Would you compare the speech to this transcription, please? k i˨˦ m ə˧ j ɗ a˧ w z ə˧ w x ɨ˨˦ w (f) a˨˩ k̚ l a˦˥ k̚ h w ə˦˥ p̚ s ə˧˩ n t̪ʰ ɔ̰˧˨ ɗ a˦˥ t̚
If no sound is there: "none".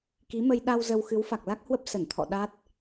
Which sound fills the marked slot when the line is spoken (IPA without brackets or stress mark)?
f